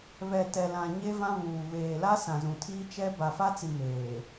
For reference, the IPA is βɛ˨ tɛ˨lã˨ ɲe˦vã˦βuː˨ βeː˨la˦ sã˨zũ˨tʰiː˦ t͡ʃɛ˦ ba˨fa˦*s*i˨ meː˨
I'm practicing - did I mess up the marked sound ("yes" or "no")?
yes